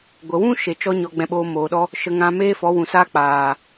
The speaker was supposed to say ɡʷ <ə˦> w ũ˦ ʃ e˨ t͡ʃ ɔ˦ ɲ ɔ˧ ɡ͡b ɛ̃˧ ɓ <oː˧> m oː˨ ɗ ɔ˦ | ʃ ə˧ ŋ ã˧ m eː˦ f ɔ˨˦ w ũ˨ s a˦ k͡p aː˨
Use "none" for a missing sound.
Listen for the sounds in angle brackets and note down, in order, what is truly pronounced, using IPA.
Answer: ə˨, oː˧

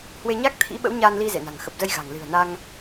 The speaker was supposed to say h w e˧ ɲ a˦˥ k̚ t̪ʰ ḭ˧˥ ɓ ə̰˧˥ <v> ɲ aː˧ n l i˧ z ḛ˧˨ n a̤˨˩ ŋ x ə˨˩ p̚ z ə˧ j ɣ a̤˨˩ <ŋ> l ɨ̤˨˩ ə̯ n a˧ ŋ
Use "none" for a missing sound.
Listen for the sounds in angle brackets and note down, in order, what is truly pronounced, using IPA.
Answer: w, ŋ

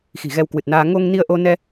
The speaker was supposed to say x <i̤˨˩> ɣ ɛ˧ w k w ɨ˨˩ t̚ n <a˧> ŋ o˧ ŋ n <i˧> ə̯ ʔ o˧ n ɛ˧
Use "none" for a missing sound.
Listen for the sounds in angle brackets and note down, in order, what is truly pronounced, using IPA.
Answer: i̤˨˩, aː˧, i˧

